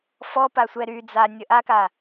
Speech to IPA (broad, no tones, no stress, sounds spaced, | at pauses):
f ɔ p a sʷ ɛ ɾ y d͡z a nʲ ə ʔ a k a